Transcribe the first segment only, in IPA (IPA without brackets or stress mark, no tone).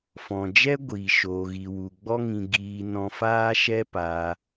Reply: f